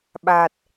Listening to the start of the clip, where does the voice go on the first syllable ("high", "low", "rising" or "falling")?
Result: low